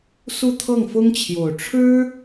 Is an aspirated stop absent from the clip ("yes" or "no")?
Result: no